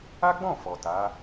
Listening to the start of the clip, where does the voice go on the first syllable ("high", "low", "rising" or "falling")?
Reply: high